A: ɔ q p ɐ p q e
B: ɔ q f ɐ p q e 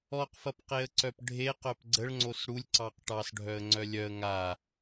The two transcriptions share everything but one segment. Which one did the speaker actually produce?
B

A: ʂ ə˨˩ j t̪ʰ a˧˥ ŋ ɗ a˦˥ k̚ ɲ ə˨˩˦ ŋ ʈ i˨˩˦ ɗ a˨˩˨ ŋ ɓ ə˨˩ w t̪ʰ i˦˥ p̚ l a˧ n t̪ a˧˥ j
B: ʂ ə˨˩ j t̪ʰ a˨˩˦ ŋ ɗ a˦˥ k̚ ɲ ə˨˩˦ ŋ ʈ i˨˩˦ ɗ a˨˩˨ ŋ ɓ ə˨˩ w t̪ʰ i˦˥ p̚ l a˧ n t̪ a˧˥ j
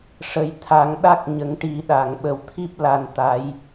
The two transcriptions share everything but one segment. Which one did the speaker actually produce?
B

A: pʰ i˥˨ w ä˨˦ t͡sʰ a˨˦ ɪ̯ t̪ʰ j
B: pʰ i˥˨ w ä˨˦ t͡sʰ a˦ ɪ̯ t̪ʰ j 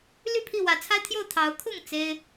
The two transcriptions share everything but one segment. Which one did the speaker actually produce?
B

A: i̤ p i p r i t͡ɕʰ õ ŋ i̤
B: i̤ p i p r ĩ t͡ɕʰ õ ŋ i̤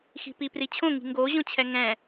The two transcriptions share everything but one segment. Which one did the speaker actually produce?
A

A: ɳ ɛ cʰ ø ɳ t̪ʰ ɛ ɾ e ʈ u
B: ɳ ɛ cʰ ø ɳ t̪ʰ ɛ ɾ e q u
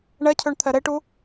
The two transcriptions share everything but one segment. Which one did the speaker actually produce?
A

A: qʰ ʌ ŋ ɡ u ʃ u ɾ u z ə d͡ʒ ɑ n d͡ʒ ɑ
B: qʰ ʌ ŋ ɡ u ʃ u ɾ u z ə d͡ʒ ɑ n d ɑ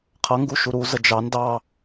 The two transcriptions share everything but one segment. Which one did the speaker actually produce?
B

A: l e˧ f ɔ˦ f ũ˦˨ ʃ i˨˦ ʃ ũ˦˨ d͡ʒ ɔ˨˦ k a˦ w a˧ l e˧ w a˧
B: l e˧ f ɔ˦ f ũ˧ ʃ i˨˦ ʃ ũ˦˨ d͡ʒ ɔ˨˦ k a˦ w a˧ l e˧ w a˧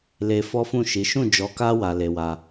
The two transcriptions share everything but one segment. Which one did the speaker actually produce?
A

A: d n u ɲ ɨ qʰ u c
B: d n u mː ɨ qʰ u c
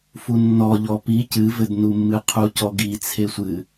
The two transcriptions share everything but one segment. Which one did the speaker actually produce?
B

